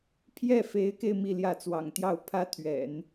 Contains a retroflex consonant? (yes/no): no